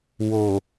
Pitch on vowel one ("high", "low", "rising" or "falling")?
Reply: low